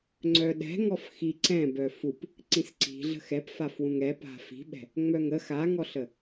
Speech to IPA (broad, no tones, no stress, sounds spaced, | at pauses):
ŋ͡ǀ œ ɗ ɛ̤ ŋ ɔ f x i ǀ ɛ̃ b œ f u p | ǀ ĩ s ǀ i̤ ɮ ə̤ x ɛ p f a f w ũ ŋ ɛ p a̤ f i̤ ɓ ɛ̤ | ŋ͡m œ ŋ ə x a ŋ ɔ ɬ ə